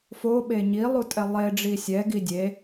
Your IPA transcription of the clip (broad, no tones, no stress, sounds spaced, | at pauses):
f o ɓ e ɲ i lˠ u tʼ ɛ lˠ e ɖ͡ʐ i sʲ ɛ ɡ i dʲ e